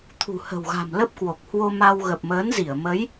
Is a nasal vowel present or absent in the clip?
absent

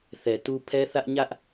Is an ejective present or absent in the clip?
absent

